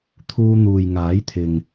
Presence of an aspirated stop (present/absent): present